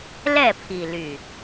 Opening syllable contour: falling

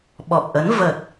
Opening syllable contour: low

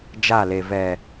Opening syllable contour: falling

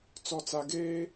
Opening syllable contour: low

